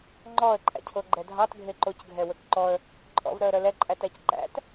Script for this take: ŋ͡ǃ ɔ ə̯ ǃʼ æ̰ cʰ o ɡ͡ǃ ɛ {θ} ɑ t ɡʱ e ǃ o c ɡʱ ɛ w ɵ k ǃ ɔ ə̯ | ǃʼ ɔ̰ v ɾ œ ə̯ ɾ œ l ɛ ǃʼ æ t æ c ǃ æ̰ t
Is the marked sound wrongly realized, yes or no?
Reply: yes